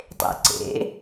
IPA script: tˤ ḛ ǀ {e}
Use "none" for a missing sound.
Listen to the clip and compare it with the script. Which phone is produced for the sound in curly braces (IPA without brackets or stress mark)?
ḛ